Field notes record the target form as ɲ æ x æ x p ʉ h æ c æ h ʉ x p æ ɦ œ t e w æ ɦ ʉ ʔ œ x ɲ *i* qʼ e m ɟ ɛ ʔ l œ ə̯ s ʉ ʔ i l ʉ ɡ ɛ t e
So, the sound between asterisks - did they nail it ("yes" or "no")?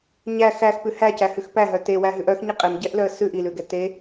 yes